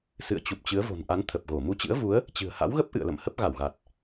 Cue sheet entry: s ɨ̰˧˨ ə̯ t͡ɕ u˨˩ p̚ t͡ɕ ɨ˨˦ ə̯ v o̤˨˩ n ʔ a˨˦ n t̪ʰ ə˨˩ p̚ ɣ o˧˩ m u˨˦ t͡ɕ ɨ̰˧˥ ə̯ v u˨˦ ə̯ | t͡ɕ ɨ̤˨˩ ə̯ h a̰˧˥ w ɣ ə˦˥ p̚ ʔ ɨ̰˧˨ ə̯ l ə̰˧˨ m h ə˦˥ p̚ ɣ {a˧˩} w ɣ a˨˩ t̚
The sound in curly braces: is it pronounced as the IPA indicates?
yes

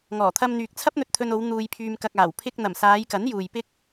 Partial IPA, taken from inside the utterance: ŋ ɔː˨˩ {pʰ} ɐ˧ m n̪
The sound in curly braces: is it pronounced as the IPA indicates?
no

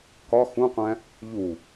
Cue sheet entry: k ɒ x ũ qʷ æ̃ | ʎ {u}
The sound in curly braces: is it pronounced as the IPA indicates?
yes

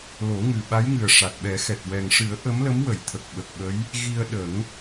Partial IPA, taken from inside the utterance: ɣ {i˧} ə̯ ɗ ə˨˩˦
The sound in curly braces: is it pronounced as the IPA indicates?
yes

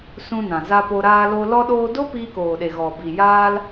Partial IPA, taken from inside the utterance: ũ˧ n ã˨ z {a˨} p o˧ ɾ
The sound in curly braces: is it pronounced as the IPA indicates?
no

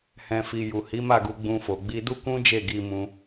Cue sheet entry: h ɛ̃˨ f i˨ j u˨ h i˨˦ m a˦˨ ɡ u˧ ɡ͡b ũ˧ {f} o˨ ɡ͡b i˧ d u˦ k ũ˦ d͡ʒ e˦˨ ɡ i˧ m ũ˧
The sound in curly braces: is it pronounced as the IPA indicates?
yes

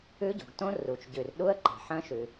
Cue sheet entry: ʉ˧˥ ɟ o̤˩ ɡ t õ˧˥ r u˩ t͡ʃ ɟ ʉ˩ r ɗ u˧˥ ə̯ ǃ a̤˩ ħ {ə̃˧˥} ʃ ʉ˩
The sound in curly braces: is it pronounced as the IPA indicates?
no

